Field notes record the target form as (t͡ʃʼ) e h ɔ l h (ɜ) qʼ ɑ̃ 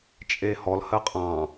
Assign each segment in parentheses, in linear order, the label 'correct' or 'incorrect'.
correct, correct

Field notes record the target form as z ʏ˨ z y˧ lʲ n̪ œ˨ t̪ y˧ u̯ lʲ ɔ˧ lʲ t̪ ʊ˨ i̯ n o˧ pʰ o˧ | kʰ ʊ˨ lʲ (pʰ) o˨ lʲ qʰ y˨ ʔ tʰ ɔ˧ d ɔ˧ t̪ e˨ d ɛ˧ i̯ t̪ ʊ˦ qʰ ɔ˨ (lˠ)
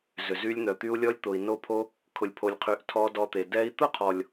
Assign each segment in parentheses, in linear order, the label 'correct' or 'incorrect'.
correct, incorrect: lʲ

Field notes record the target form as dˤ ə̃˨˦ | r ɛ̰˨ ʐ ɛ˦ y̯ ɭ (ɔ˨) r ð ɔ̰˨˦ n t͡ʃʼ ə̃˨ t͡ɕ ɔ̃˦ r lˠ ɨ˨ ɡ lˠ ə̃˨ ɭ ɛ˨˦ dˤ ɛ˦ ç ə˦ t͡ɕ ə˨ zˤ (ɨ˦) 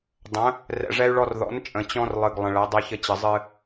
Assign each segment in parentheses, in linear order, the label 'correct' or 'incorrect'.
incorrect: ɔ˦, correct

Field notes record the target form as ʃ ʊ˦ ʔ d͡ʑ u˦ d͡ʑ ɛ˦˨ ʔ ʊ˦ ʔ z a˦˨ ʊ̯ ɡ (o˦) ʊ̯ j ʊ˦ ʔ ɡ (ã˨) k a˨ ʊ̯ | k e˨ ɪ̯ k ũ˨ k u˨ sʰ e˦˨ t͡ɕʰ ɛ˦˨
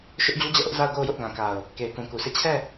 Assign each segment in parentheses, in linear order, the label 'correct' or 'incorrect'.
incorrect: o˦˨, correct

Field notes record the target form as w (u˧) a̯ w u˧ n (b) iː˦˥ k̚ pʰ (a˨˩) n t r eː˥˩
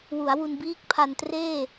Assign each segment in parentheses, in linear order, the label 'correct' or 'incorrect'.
incorrect: u˩˦, correct, incorrect: a˧

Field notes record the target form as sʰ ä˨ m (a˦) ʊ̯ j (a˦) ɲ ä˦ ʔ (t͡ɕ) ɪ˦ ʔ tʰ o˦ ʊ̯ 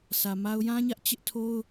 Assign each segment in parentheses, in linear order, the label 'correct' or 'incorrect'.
correct, incorrect: ã˦, correct

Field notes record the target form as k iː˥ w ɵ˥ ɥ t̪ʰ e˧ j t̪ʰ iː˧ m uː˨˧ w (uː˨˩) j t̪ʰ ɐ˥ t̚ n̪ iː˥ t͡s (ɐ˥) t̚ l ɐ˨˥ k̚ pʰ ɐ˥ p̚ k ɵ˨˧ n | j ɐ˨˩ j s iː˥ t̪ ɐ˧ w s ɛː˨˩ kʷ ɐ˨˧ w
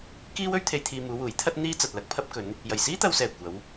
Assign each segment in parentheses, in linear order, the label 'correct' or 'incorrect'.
incorrect: uː˨˥, incorrect: ɐ˨

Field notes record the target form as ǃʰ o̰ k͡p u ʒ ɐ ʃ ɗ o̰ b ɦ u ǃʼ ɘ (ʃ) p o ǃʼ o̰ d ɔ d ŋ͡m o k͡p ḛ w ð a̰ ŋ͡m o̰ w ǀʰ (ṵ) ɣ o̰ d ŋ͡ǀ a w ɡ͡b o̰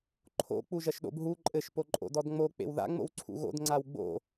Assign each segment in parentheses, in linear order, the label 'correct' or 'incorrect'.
correct, correct

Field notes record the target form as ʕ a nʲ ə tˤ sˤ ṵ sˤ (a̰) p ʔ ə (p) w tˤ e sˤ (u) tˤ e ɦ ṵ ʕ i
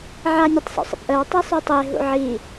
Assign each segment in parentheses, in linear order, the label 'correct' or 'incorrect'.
incorrect: ə̰, incorrect: none, correct

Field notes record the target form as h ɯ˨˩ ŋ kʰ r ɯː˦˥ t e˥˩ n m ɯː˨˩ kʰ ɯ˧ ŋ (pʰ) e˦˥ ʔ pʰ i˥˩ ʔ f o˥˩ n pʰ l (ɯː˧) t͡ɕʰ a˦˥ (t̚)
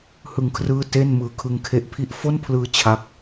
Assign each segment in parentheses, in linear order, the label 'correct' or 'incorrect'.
incorrect: kʰ, correct, incorrect: k̚

